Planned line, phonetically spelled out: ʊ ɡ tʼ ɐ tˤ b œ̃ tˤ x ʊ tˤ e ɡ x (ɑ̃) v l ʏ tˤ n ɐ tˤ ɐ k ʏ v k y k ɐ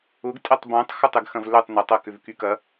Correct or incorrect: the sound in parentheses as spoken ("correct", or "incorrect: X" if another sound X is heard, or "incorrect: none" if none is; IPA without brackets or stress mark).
incorrect: ɐ̃